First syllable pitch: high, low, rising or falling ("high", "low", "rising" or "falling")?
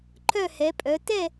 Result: falling